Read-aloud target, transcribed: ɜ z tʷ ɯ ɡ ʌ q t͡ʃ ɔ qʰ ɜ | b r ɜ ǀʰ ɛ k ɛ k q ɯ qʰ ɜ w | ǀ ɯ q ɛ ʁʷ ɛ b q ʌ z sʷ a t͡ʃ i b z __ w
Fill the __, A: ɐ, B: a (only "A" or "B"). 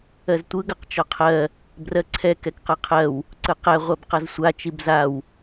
B